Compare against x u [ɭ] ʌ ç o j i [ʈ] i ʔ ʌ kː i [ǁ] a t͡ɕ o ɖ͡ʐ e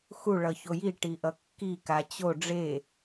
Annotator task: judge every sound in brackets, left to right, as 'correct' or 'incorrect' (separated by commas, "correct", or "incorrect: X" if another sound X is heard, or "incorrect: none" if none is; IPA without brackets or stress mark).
correct, correct, incorrect: k